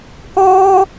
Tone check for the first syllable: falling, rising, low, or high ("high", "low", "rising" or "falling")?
high